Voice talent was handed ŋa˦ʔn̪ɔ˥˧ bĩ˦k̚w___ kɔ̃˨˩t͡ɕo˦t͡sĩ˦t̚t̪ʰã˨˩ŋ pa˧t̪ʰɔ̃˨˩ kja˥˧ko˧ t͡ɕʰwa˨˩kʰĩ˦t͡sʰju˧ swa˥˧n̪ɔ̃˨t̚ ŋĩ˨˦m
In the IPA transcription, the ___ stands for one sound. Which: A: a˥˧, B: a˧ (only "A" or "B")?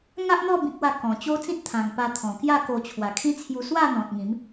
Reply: A